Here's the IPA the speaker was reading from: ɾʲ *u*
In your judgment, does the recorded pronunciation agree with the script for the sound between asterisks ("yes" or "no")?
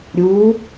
no